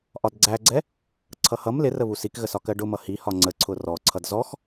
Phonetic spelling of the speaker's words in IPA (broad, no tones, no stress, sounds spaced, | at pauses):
ʔ ɒ d ɡ͡ǀ æ ɡ͡ǀ ɛ | ǀʰ ʌ h ʌ m l ɪ r ə β u s i k ɣ ə s ɒ k ɜ ɖ ʊ m ʌ h i h ɒ ŋ͡ǀ ə ǀʰ ʊ r ɔ ǀʰ ʌ d z ɔ x